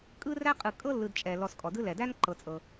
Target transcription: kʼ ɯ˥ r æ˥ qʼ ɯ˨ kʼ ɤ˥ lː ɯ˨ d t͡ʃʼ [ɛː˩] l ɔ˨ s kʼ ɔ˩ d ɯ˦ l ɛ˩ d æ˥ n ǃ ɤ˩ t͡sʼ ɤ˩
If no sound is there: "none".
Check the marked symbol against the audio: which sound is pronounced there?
ɛ˩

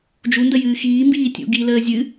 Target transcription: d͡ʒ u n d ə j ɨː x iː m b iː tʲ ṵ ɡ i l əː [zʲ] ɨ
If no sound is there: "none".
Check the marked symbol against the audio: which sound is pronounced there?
zʲ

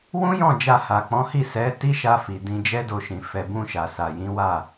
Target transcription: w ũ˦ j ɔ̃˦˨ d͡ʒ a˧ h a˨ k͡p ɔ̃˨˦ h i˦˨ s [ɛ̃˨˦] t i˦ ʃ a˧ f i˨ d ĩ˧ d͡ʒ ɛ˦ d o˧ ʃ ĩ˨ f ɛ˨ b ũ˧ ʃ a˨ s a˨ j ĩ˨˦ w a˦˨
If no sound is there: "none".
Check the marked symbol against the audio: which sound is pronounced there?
ɛ˨˦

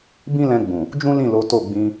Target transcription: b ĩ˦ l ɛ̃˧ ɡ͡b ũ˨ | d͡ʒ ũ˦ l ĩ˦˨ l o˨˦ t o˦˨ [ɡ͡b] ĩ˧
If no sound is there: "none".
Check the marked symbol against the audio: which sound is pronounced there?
ɡ͡b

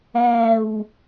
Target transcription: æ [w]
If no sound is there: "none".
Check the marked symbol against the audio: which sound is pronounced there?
w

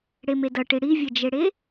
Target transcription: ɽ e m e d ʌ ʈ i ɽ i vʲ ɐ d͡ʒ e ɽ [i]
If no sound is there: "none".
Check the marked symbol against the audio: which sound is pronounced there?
e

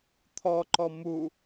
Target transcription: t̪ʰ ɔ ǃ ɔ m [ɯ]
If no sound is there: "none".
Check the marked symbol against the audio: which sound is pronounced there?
u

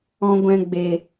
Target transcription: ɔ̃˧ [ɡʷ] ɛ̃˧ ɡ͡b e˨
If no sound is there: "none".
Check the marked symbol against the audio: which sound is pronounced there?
ɡʷ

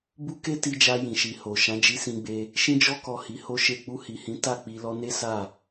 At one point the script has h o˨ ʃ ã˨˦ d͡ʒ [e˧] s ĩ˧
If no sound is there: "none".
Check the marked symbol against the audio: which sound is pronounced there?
i˧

